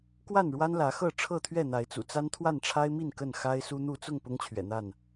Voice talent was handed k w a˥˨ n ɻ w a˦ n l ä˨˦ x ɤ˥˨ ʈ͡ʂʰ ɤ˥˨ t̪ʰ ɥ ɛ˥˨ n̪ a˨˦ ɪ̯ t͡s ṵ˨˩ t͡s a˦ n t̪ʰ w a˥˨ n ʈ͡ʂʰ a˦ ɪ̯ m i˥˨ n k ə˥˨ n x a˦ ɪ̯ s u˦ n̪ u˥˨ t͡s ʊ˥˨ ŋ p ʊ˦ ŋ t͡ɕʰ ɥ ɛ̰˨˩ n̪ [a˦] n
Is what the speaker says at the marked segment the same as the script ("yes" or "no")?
no